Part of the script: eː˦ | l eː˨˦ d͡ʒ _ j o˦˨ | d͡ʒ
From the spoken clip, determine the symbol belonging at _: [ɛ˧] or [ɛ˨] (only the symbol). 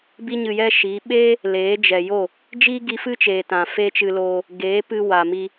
ɛ˨